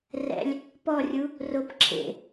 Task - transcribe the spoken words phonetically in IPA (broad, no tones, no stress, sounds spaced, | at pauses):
r ɛ̰ lʲ | p ɔ rʲ u | r o p ǁʰ ḛ